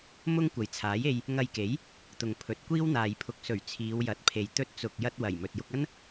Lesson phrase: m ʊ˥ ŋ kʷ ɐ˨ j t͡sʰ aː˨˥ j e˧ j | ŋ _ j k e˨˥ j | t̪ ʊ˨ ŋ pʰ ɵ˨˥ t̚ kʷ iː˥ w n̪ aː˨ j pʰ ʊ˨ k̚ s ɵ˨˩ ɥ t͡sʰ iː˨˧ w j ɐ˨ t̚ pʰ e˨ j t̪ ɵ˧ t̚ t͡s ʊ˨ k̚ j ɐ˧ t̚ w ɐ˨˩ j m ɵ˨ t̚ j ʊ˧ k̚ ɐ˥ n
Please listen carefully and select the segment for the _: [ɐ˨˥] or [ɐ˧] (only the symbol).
ɐ˧